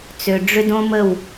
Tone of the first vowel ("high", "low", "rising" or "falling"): low